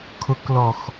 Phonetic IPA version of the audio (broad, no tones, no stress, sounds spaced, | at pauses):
kʰ ʊ k l ɔ x